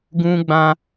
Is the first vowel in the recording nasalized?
yes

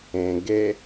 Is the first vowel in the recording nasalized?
yes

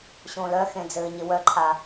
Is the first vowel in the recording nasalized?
yes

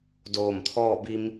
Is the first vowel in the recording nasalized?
no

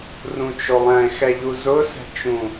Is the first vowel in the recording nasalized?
yes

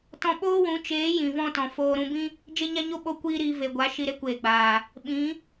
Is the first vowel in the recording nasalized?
yes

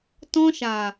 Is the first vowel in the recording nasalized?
yes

